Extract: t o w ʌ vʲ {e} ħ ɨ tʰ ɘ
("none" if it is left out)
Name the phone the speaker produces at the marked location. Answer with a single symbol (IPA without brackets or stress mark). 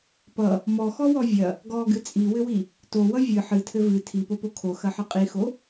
ɨ